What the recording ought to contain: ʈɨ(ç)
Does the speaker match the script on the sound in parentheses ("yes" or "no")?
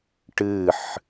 no